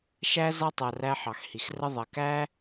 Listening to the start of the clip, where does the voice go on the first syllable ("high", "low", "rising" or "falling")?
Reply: high